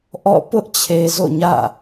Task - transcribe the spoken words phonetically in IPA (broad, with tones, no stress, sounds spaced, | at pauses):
ʔ ɔ̰˦˨ p ʊ˦ ʔ t͡ɕʰ e˨ z o̰˦˨ ɲ ä̰˦˨